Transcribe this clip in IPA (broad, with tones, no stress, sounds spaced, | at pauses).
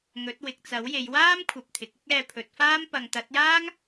ŋ ɵ˨˥ t̚ w ɪ˨ k̚ t͡s ɐ˨˥ w j e˨˧ j w aː˥ m kʷʰ ɐ˨ p̚ t̪ʰ ɪ˨ k̚ ɪ˥ k̚ ɛː˧ pʰ ɵ˨˥ t̚ f aː˥ m p ɐ˨ ŋ t̪ ɐ˨˥ t̚ j aː˥ ŋ